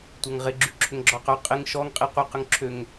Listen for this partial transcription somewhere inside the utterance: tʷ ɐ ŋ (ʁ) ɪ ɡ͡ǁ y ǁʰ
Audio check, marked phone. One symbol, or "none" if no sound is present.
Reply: ʁ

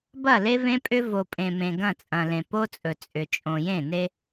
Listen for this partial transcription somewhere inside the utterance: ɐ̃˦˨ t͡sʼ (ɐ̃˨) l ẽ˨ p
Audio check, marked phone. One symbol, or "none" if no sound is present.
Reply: ɐ̃˨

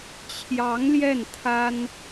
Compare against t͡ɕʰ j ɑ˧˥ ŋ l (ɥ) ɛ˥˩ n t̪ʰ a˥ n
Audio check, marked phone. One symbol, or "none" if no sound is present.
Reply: j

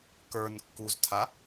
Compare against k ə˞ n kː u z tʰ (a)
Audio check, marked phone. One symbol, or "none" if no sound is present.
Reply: a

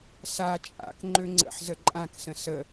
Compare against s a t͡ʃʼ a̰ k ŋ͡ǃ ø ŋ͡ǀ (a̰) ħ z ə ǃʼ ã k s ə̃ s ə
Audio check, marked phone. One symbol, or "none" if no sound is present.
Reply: ə̰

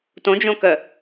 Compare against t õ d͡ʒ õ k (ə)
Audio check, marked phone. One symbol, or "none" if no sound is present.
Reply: ə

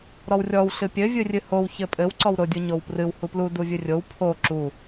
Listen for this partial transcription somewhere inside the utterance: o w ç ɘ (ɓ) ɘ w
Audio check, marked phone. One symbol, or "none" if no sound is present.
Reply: pʼ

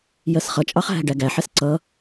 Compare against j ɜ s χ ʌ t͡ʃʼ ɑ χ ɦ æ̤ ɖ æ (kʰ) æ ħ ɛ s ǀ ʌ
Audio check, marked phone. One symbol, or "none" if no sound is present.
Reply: ɡ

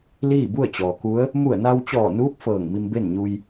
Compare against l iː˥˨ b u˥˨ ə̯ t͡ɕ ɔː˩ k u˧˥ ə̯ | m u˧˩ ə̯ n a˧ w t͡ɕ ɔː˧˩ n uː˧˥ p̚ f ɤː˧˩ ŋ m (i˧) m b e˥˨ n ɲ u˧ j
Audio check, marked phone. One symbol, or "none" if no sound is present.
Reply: i˧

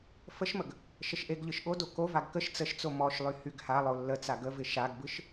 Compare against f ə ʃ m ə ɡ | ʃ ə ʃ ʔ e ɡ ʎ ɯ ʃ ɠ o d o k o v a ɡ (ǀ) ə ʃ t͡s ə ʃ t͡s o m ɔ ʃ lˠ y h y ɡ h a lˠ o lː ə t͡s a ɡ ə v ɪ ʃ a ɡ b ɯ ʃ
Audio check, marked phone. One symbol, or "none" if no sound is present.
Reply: k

